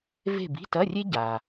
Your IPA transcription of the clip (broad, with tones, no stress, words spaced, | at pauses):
ve̤˦˨bi̤˧˥˧tɐ˧˥˧rʲe˥ ɟa˩